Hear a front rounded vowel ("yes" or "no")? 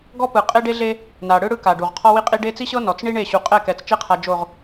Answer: no